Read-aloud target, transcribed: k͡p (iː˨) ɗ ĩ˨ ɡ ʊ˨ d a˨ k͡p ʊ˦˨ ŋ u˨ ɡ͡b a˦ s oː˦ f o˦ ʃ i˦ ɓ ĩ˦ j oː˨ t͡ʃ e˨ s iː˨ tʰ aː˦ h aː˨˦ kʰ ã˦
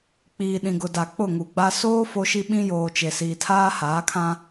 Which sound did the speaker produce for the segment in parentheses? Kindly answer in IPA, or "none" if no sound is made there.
iː˨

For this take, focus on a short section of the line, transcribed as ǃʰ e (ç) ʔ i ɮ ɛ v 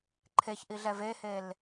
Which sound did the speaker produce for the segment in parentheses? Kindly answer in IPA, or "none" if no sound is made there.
ç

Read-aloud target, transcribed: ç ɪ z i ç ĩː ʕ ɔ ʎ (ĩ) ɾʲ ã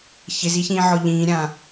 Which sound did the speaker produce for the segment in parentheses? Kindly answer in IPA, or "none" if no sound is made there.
ĩː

